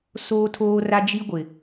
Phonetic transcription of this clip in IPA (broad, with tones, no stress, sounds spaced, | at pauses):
s oː˦ tʰ oː˦ r a˦ d͡ʒ i˦ ɡʷ ɪ˨